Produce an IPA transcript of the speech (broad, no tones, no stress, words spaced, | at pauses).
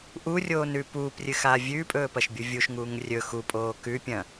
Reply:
ʔurʲoːnʉ puːprʲɨxaː vʲʉːpʼɵːpɐʃbʲu vʲuʃŋuːŋ rʲɵ xupʼoː kʉpʲɐ̃